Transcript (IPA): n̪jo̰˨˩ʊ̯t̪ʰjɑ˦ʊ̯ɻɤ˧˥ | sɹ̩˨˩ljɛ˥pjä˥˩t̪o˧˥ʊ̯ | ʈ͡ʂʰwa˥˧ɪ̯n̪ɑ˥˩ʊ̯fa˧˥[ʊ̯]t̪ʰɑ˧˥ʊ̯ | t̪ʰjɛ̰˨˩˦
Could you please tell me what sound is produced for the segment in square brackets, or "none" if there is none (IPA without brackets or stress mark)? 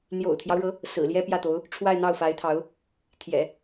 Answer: ɪ̯